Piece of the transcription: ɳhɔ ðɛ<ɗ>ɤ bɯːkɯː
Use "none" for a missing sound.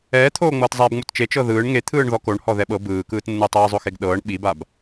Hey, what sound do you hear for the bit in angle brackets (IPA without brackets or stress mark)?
ɓ